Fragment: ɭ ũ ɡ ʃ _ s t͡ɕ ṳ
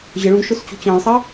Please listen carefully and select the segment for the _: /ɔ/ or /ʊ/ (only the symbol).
ʊ